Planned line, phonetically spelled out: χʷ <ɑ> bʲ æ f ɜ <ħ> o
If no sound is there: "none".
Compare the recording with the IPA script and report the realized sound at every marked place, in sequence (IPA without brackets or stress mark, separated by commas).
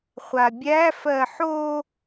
a, ħ